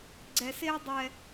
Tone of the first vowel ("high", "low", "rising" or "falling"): low